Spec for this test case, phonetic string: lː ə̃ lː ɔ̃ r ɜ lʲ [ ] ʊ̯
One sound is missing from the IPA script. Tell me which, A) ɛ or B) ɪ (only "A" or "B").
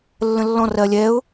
A